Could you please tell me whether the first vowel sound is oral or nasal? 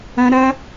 nasal